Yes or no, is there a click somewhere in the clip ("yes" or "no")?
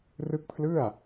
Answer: no